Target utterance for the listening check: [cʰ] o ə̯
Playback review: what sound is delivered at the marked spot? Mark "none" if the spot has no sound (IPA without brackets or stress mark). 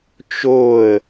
t͡ʃ